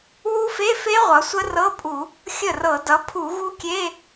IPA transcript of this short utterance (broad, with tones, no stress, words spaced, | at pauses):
wu˦˥fe˧˥˧fe˦˥ ʁʷʌ˩˧sʷə˦˥rɤ˧˥˧pʼu˧˩˧ | xʲə˥˩rɤ˧˩˧ dʌ˩˧pʰu˧˩˧ɣu˦˥kʲe˧˥˧